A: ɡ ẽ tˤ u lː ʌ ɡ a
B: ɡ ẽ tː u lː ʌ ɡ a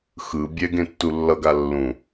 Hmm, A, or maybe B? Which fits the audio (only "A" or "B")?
B